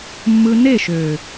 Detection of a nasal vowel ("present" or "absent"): absent